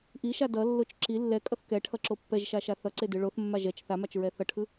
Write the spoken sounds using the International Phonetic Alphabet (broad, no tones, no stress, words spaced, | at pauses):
ʔiʃa dʌlːot͡ʃ ǁi lːɛkʼʌθ kɛʈʰʌǁo pːɛʒʃaʃa θʌǀedɯ ɭoθmːa ʒɛt͡ʃ θamat͡ʃɹɛ θʌʈʰɯ